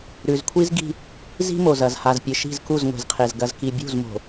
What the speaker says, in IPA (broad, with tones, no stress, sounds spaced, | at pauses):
ɾ ʉ˨ z kʷʰ i˦ z ɡ i̤˦ | z i̤˦ m o˨ z ɐ˨ z h a˨ z pʲ ɨ˨ ʃ i̤˦˨ z k u˦˨ z ŋʷ e̤˨ z qʰ e˨ z ɡ ɐ˨ z k i˨ bʲ ṳ˦˨ z m o̤˨